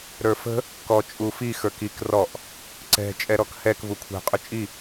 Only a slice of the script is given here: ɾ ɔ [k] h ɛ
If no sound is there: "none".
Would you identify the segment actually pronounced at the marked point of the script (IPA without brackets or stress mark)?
k